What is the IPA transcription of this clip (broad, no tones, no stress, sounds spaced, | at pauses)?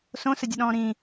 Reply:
s õ s ə dʲ ə ɗ ɔ̃ː ɾ ĩ